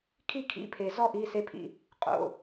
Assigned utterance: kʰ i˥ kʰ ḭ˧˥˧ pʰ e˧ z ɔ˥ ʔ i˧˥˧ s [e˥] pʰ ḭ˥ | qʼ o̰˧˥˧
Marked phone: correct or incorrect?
correct